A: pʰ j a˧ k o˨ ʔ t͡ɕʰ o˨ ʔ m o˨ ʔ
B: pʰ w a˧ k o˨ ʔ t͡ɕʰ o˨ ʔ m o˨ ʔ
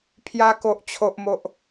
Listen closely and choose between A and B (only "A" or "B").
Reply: A